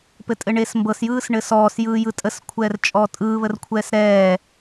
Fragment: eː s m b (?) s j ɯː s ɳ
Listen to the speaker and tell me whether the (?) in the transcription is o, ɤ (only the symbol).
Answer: ɤ